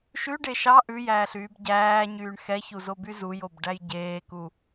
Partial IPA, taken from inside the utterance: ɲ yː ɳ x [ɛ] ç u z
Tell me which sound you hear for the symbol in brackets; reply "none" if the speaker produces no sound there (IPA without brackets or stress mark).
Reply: ɛ